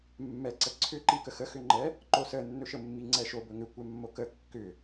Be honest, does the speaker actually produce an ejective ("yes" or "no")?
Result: no